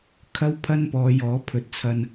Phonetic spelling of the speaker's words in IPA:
kʰ ɐ˥ w pʰ ɐ˥ n p ɔː˨˧ j ɔː˨˥ pʰ ɵ˨˥ t̚ t͡sʰ ɐ˧ n

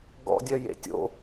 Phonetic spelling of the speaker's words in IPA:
ɡ ɔ̰ dʲ œ j ḛ tʲ o̰

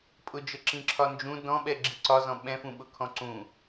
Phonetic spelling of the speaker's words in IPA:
pʼ ʊ d͡ʒ ə ǁ ĩ ǁʰ ɒ n d͡ʒ ũ d ɔ̃ ɓ ɛ ɡ͡ǁ i ǀ ɒ z ɔ̃ ɓ ɛ̃ f ũ ɓ ʊ kʰ ɔ̃ ǀ ũ

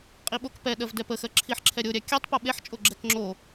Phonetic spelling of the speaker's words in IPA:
qʼ i ɓ o k p ɛ ɗ ɜ v d ɛ p ə x ɜ ǁʰ i ħ ǁʰ ɛ ɾʲ o ɾʲ æ kʲ a tˤ p o ɓ e ħ t͡ʃʼ o ɡ͡ǁ ɛ k ŋ͡ǁ o

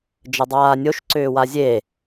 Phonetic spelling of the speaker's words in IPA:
d͡ʒ ə dˤ aː nʲ o ʃ ǀ ʏː w a zʲ e

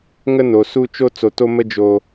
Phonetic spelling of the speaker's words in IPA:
ŋ ə˦ n o˨ s u˦ t͡ʃ o˦ t͡s o˨ t o˦ m ə˦ d͡ʒ o˦

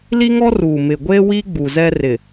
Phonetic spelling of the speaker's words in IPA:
l i˦ ŋ ɔ˦ r uː˨ m ɪ˨ ɡʷ e˦ w i˦ ɡ͡b u˨ z ɛ˦ r ɪ˨

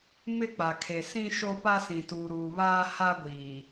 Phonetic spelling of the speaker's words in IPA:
m ɪ˦ k͡p a˨ kʰ e˨ s ĩ˦ ʃ o˦ p a˦ s ĩ˨ t uː˨ ɾ uː˨ β aː˦ h a˦ ɡʷ iː˨

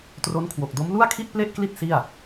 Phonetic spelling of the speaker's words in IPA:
t r o˦˥ n kʰ w o˨˩ k̚ d o˦˥ m l u˥˩ a̯ kʰ i˥˩ t̚ p l e˥˩ ʔ k l i˥˩ t̚ s i˥˩ a̯

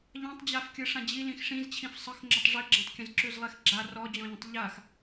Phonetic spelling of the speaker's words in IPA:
ʎ ã tˤ d͡ʑ a f kʲ ɯ ʂ ã d͡ʑ i l ĩ x ʂ ĩ z t͡ɕʰ ĩ f sˤ ə x ŋ͡ǁ ə tˤ ʐ i ɡ͡ǁ ã tˤ kʲ ə̃ z ǁ ʉ z lˠ e x ɡ͡ǁ a r ɔ d͡ʑ ɔ̃ ʎ ə̃ tˤ ʎ a x

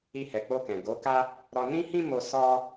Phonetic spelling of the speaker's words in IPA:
i˧ h ɛ˨ k͡p o˧ k ɛ̃˨ ɡ o˨˦ k a˦ | ɾ ɔ˧ n ĩ˦ h ĩ˦ m o˧ s ɔ˦

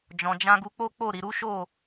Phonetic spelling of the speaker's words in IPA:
d͡ʒ ɔ̃˨ d͡ʒ ã˧ ɡ u˧ k͡p o˦ k͡p o˦˨ ɾ i˨ ɾ u˨˦ ʃ o˦˨

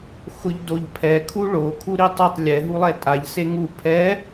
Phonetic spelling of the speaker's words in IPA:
x ʊ ʎ d o ʎ pʰ ɛ kʰ u ɭ o kʰ u ɾ i tˤ ɪ tˤ lʲ ɛ ɦ u lˠ ɛ tʼ a ʎ s e ŋ u pʰ ɛ

